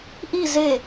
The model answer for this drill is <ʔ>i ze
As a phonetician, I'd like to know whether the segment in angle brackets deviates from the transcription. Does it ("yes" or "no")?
no